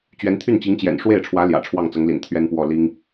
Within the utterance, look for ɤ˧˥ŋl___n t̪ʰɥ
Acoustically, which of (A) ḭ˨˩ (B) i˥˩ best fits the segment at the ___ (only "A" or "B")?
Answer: A